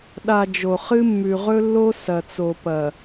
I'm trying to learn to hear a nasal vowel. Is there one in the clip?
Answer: no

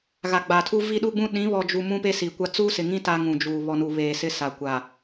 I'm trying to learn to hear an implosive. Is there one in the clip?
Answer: yes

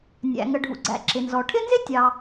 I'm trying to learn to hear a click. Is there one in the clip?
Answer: yes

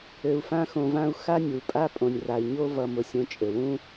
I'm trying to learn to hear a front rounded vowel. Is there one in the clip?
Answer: no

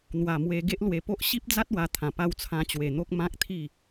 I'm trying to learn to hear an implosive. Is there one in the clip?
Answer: no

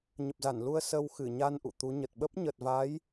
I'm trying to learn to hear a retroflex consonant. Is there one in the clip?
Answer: no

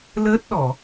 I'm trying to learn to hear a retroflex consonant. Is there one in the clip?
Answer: no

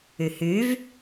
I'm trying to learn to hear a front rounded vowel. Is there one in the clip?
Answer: yes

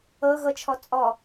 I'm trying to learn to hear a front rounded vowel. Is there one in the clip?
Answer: no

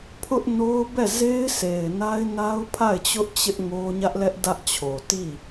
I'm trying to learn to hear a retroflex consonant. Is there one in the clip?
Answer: no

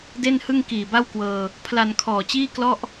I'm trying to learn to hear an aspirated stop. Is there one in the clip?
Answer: yes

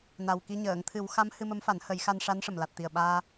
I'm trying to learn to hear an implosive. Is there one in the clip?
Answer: yes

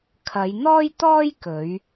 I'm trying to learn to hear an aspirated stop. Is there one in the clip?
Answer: yes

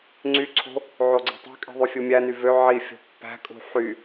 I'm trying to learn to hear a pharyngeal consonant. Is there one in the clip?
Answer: yes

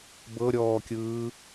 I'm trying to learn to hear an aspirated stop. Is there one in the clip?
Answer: no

